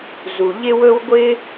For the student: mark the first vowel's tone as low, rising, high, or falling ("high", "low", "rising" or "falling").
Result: low